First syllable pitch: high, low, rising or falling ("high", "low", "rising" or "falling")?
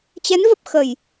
rising